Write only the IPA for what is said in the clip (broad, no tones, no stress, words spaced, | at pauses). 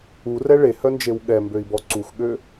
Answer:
urɛ ɭehœnd͡ʒew ɠɛmbøi̯bɔ ǀuxɠø